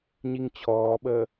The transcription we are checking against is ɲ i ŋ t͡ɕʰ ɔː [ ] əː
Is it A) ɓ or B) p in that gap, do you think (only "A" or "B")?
A